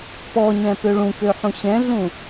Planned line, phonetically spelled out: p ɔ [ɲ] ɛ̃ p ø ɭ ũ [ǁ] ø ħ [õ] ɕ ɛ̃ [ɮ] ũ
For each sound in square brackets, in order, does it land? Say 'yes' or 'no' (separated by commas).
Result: yes, no, no, yes